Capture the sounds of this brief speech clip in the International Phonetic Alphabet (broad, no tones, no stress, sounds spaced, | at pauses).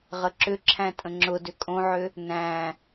ʁ ə ǁ ʏ ǁʰ æ̃ tʼ ə̃ ŋ͡ǁ ʊ d ʏ kʼ õ ʕ ʏ | n æ̃